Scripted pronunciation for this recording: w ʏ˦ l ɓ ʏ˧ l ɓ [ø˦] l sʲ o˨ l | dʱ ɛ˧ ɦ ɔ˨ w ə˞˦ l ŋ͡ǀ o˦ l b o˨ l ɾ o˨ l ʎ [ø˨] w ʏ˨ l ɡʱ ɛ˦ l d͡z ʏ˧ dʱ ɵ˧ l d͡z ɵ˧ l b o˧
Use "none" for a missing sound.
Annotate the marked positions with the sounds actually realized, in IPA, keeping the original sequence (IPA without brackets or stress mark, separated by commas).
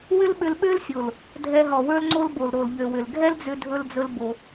ø˦, ø˨